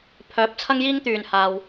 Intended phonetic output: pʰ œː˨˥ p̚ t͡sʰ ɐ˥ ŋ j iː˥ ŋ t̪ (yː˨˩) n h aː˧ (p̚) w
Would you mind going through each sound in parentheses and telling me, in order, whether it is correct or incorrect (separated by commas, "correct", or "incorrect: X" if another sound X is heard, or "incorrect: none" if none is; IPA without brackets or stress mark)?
correct, incorrect: none